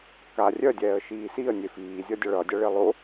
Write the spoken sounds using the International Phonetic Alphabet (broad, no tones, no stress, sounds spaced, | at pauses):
k a rʲ œ dʲ ɛː ə̯ ʃ iː s i ə̯ nʲ e f iː zʲ ʌ dʲ ʌ ɭ ʌ dʲ ʌ ɭ e lˠ o